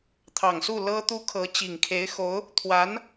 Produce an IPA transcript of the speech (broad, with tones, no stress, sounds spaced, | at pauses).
t̪ʰ ɑ˨˩ ŋ s u˥˩ l ɤ˥ t̪ u˥ kʰ ɤ˧˥ t͡ɕ i˨˩ ŋ kʰ e˧˥ ɪ̯ x o˧˥ ʊ̯ | t̪ʰ w a˧˥ n